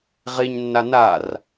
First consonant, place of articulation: uvular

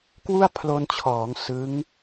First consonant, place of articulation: velar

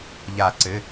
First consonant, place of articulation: palatal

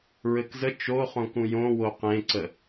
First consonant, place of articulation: alveolar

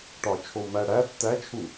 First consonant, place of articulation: retroflex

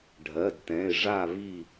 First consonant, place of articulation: retroflex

